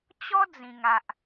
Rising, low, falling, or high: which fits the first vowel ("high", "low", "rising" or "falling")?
high